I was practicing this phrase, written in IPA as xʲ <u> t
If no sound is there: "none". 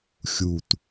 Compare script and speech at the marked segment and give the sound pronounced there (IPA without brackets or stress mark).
u